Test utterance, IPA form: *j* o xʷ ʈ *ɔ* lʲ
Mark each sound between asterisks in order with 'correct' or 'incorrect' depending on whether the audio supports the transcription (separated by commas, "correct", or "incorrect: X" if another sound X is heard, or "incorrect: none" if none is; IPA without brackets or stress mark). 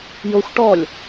correct, correct